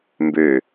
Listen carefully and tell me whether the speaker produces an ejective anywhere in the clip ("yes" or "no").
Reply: no